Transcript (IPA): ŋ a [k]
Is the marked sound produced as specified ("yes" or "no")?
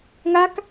yes